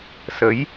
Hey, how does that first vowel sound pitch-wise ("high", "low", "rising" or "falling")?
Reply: rising